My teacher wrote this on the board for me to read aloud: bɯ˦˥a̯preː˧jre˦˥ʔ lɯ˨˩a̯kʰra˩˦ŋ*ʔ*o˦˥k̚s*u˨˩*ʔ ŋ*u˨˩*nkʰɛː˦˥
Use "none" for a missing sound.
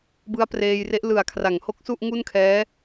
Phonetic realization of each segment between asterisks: h, u˥˩, u˥˩

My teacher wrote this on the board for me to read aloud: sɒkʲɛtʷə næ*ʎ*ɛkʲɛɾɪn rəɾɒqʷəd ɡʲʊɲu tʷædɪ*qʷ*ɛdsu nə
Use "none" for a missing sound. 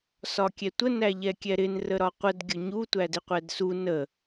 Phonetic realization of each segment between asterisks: ʎ, qʷ

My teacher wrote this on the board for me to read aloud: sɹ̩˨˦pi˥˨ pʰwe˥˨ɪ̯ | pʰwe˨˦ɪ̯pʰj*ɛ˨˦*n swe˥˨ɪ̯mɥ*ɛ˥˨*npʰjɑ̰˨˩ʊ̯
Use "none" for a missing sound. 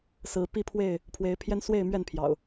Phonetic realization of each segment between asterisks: ɛ˦, ɛ˥˨

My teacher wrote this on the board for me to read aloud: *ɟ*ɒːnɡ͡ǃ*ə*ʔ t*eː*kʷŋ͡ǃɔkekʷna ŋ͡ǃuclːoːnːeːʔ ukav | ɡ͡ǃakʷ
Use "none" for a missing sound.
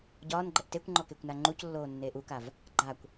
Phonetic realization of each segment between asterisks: ɟ, ə, e

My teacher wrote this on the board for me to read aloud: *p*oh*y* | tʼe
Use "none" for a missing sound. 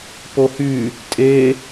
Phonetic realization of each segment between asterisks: p, y

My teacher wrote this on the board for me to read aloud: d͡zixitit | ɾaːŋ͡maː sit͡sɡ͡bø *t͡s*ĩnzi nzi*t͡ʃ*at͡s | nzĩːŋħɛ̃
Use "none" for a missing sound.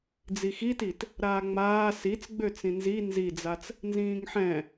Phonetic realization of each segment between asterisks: t͡s, d͡z

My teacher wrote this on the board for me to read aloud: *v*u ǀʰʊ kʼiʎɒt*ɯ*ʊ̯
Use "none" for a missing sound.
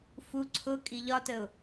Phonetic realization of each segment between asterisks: f, ə

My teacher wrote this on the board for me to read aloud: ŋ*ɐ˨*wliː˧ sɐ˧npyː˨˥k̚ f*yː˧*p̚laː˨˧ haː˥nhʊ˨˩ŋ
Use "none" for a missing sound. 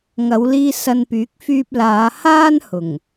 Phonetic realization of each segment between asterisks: ɐ˨˧, yː˧

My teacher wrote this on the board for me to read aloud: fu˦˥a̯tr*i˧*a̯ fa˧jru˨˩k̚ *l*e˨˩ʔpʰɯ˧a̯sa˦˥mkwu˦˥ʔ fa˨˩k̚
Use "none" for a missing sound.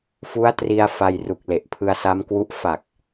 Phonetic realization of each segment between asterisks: i˧, l

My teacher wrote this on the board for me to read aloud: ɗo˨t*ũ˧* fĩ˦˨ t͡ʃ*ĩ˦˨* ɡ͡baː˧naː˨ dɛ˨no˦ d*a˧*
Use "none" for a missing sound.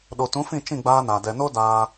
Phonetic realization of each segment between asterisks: ũ˨˦, ĩ˦˨, aː˧

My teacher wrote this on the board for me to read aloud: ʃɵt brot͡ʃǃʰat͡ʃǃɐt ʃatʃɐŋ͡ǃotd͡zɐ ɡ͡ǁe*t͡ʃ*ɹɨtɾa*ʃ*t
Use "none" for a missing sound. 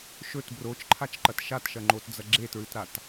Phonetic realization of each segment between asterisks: t, none

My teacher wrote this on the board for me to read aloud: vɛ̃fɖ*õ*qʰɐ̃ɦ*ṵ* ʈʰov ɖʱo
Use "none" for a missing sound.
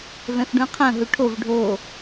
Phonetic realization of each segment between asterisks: ũ, u

